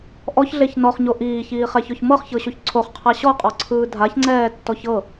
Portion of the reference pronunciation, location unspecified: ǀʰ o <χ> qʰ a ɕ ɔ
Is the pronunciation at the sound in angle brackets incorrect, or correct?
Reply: correct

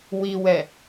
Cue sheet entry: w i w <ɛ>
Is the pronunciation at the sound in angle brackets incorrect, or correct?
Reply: correct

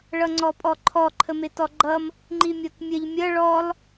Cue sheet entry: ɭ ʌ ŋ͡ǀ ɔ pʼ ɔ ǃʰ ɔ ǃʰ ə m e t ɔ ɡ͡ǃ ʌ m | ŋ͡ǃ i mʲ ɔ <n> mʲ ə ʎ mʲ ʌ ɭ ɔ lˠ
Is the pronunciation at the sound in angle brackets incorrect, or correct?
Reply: incorrect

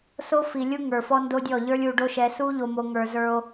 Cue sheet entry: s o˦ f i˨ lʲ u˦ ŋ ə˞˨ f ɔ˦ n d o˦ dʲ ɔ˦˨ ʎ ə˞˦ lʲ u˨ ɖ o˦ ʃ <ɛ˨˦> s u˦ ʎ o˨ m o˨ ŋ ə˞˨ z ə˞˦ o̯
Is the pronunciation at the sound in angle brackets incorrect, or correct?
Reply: correct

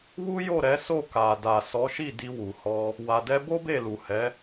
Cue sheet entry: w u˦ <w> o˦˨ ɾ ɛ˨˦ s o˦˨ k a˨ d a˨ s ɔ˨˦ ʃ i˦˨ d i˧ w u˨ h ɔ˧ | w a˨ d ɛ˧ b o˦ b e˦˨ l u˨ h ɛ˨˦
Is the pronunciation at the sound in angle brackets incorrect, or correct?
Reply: incorrect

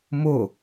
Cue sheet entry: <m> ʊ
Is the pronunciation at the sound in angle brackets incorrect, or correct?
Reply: correct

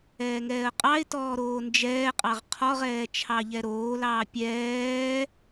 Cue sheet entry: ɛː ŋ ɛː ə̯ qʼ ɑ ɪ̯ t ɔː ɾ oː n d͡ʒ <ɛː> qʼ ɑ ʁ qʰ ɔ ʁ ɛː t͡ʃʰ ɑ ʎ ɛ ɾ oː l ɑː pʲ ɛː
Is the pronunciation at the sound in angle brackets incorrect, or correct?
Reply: correct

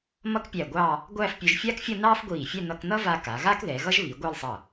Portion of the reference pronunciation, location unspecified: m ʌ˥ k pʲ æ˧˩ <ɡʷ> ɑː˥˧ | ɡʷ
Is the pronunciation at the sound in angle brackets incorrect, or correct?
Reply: correct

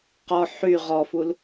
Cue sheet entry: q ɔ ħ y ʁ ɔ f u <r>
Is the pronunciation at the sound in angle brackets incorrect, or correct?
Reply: incorrect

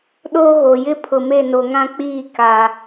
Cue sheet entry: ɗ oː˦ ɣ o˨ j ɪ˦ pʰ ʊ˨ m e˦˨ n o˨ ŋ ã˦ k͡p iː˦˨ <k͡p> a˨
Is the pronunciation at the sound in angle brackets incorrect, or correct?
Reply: incorrect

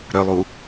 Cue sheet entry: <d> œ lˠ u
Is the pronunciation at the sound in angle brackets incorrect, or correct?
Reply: incorrect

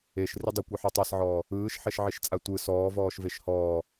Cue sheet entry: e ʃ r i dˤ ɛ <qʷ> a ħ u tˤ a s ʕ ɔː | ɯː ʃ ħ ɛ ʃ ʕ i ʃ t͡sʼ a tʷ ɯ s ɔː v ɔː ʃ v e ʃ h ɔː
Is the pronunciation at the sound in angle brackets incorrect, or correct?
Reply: incorrect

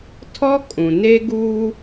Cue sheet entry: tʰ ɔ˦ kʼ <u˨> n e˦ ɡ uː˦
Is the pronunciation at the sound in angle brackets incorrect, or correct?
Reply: incorrect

